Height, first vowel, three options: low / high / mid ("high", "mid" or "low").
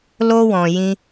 mid